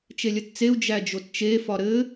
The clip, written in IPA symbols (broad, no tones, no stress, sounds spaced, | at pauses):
t͡ʃ e lʲ ə t t͡s e u̯ d͡ʒ æ d͡ʒ o t t͡ʃ e f ɒ ɾ ɘ